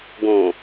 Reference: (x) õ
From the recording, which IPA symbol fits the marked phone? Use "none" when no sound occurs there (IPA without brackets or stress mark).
ɡ